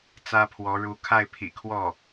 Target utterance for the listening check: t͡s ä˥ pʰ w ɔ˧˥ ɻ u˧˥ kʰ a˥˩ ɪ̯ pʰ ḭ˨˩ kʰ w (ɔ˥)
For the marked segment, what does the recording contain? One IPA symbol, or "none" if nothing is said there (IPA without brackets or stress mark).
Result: ɔ˥˩